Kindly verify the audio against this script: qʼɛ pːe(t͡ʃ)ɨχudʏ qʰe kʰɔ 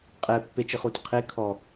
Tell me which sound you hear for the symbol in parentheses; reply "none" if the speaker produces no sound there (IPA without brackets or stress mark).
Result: t͡ʃ